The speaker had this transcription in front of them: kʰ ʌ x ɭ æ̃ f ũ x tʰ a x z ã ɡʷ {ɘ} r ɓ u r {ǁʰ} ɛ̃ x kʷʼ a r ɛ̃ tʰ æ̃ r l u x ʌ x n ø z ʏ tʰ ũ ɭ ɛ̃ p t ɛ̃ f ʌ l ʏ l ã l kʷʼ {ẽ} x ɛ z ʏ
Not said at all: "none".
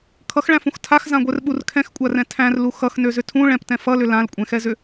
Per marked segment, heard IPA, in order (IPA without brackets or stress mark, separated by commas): ɛ, kʰ, ɛ̃